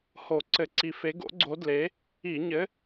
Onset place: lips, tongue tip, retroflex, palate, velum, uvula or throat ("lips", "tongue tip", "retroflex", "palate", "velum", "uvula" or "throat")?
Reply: throat